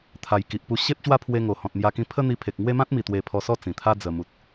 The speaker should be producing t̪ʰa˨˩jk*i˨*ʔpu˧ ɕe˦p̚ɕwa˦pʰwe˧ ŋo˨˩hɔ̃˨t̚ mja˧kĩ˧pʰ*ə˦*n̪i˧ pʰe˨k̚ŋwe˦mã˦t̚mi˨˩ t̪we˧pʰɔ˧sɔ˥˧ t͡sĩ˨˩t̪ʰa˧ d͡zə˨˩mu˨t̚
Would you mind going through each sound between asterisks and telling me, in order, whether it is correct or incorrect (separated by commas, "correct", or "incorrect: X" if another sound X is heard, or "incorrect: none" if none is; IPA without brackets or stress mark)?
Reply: correct, correct